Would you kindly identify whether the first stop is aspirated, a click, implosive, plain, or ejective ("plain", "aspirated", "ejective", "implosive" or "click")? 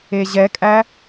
ejective